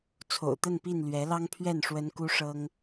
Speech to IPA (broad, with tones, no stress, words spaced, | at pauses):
t͡sʰo̰˨˩ʊ̯t̪ə˥˨npi˥˨n lɥɛ˨˦lɑ˦ŋpʰɥɛ˥˨n ʂwə˦n ku˦ʂɤ˦ŋ